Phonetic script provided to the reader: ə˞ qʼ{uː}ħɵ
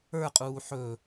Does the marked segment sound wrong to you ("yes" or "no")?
no